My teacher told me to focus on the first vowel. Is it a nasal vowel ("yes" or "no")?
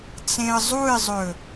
yes